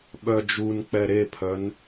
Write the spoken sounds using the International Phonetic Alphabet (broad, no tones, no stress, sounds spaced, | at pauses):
ɓ œ d͡ʒ u n k͡p ɛ ɾ e pʰ œ n